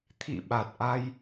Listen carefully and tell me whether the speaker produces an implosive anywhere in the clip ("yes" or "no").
yes